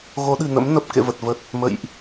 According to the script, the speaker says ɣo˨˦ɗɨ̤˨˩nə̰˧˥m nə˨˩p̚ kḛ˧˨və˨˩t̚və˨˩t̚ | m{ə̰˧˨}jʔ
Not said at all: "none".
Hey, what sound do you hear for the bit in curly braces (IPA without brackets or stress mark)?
ə̰˧˨